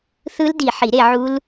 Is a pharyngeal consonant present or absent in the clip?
present